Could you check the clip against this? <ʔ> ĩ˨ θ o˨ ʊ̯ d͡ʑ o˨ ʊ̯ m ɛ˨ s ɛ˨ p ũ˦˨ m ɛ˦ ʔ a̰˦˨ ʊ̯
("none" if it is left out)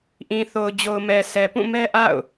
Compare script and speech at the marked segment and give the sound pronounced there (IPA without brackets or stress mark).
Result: ʔ